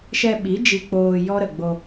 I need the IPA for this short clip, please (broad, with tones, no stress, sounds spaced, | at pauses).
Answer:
ʃ ɛ˧ ɓ i˨˦ d͡ʒ i˧ k͡p oː˧ j ɔ˦ ɾ ə˨ ɡ͡b o˧